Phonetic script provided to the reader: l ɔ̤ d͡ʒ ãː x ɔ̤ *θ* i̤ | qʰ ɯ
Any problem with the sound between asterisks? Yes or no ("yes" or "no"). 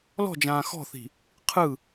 no